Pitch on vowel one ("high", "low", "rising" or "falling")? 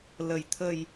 low